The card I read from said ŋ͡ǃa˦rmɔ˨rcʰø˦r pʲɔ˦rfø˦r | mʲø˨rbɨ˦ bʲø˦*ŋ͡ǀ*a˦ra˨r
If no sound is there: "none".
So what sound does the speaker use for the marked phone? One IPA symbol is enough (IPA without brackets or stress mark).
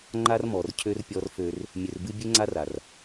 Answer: ŋ͡ǀ